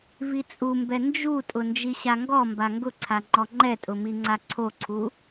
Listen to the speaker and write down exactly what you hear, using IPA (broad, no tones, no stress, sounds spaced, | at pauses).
v i t͡sʼ u m b ɛ n d͡ʒ u tʼ ʊ n d͡ʒ i ɕ a ŋ ɡ ɔ m b a ŋ ɡ ʊ ǀʰ a ŋ͡ǃ ɔ ŋ͡ǃ ɛ tʼ ʊ m i ŋ͡ǀ a ǀʰ o ǀʰ u